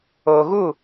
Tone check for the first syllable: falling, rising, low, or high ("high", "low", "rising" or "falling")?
low